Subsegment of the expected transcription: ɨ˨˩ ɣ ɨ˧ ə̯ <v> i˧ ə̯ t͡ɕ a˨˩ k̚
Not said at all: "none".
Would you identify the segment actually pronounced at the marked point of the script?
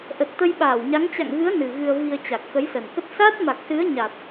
v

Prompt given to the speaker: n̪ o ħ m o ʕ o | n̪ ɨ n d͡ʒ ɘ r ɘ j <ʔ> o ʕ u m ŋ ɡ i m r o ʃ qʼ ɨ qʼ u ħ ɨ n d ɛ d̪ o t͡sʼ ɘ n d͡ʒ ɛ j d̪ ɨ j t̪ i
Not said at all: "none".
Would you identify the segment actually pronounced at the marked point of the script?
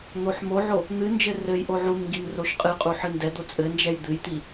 ʔ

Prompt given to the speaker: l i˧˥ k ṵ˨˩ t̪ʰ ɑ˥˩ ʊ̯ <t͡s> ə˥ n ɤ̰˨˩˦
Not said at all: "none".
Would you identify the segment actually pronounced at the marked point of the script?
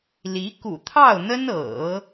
n̪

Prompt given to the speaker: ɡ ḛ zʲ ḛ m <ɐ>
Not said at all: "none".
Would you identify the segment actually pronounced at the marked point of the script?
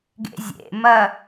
ɐ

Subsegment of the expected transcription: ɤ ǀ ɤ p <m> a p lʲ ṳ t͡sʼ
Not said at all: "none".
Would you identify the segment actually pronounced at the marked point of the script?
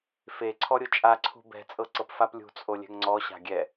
f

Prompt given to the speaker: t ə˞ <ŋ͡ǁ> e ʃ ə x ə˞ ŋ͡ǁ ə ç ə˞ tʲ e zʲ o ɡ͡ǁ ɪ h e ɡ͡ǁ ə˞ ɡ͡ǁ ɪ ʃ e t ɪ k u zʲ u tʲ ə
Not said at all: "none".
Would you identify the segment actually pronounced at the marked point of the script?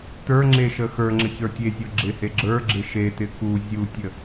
ŋ͡ǁ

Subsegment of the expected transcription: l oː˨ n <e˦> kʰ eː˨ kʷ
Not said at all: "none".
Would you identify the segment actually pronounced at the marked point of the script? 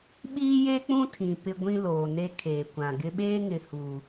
e˦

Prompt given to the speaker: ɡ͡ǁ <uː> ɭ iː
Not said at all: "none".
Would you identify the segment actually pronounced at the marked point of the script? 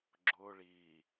ʊː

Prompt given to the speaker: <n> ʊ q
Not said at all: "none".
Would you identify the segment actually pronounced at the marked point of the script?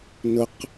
n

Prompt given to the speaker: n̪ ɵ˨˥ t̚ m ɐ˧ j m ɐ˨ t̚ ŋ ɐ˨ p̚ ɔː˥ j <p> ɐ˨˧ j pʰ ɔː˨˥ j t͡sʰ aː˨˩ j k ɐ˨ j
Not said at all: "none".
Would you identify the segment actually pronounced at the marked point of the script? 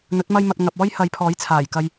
h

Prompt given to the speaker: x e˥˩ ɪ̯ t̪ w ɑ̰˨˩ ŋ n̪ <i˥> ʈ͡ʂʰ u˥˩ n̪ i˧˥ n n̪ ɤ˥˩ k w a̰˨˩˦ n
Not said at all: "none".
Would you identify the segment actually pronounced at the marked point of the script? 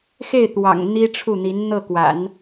i˥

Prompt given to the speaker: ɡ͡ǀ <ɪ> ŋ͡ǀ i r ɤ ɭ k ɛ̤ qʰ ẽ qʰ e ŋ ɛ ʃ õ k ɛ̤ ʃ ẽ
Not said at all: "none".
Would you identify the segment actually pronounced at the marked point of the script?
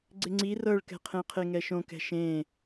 ɪ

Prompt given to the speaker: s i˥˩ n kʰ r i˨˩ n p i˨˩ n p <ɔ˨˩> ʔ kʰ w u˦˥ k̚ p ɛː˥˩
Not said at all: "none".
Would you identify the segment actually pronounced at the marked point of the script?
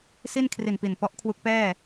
ɔ˦˥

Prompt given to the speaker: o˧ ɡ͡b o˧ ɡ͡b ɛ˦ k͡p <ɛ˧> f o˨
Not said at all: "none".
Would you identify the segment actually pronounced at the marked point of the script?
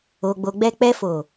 ɛ˧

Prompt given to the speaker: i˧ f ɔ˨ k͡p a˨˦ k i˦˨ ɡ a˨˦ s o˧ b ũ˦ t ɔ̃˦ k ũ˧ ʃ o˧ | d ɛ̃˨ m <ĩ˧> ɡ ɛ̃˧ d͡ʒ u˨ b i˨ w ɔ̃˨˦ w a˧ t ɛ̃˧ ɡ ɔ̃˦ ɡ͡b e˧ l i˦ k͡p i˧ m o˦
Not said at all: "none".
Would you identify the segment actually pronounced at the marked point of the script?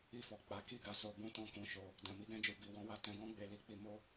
i˧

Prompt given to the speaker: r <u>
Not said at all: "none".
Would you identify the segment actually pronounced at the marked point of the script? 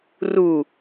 u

